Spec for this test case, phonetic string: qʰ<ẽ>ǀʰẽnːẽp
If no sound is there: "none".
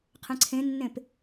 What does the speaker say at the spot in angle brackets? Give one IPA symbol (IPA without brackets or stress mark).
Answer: ẽ